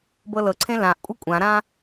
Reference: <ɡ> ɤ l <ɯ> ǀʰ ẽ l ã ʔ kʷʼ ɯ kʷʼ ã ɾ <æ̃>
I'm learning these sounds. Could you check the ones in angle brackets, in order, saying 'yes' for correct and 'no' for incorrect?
no, no, no

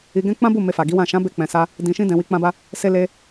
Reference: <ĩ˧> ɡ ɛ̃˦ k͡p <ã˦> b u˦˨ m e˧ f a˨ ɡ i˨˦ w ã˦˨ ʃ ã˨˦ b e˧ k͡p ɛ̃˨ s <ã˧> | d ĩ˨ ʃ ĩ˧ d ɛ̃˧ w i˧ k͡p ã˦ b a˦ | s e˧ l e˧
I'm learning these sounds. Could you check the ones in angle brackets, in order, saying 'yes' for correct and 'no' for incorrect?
no, yes, no

